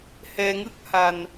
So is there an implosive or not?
no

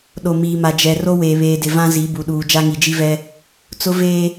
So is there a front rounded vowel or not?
no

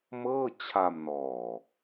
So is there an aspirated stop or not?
yes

